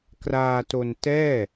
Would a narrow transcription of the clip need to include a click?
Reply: no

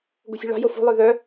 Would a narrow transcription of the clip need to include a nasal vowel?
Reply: no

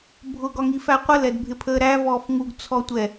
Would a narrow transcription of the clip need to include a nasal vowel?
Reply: no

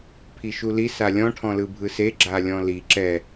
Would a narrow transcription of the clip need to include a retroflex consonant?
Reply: yes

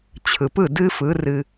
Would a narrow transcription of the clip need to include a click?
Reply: no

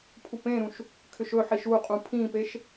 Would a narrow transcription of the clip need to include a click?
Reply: no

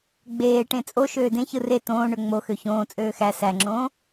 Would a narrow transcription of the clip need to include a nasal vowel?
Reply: yes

